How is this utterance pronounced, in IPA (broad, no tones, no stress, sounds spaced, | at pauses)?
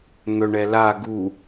n̪ œ ɳ ɛ l a ɡ u